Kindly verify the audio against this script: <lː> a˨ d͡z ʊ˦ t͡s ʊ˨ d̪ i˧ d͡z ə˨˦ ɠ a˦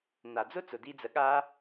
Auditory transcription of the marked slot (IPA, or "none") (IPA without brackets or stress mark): n̪